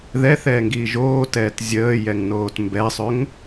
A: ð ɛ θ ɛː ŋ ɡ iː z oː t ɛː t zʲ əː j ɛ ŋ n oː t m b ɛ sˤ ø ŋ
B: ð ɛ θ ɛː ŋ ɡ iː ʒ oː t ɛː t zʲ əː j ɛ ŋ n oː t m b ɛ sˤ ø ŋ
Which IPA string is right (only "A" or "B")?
B